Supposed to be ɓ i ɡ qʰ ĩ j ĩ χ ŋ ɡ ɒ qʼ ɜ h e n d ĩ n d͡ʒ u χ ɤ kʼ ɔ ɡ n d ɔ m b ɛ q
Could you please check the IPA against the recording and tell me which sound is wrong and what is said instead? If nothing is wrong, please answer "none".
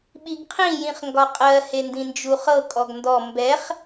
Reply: q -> χ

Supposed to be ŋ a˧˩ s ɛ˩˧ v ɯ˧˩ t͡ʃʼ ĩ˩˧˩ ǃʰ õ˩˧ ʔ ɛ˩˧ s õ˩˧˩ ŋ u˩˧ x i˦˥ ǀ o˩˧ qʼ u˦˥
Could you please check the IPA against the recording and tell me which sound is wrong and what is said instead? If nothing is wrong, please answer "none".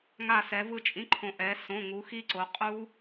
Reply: none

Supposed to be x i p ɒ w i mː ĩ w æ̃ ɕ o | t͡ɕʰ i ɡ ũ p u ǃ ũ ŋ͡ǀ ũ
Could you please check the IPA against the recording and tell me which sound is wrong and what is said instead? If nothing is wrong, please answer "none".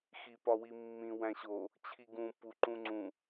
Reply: none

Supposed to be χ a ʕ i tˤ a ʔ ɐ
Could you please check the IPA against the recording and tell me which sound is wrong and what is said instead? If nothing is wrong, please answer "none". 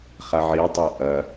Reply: none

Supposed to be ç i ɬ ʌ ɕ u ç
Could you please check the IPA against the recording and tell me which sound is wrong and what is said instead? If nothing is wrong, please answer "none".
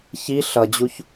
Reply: ɕ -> d͡ʑ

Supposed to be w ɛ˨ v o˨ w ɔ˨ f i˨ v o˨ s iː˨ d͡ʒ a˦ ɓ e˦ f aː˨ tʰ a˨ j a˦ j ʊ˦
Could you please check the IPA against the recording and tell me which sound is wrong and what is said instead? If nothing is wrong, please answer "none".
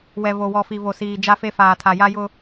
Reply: ɓ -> f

